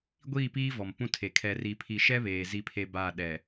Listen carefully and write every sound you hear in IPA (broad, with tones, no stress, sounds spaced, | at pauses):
ɡʷ iː˦˨ p iː˦ v ɔ˨ m p ũ˦ tʰ e˨ kʰ ɛ˨ r i˨ pʰ i˨ ʃ ɛ˦ β eː˨ z i˦ pʰ e˦ b aː˦˨ ɗ ɛ˨